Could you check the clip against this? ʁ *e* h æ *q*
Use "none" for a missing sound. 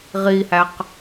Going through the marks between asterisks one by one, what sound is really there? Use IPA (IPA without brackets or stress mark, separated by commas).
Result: i, q